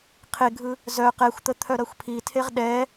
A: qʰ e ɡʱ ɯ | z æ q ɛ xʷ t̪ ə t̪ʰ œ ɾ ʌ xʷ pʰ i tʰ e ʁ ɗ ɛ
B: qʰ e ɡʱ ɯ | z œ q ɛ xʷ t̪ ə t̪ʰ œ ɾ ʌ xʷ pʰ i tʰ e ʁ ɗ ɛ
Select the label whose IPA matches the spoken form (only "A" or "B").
B